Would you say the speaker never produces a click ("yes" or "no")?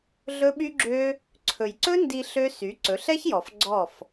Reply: no